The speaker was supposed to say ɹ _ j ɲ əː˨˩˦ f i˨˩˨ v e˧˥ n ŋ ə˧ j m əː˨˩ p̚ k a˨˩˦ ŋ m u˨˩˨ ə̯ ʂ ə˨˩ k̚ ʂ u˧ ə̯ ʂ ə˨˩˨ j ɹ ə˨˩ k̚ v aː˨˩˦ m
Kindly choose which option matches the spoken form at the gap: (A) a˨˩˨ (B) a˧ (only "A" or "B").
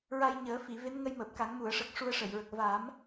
B